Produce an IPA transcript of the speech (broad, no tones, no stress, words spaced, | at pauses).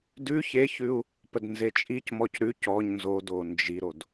dʉ çeçʉu̯ | pədnzet͡ʃʼicmɔc ɾʉ cɔɲ nzodo nd͡ʒiɾod